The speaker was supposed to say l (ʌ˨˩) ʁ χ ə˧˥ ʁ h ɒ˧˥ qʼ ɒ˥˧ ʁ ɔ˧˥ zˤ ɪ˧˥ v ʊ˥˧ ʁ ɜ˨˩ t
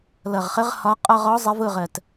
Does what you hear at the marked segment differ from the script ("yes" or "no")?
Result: no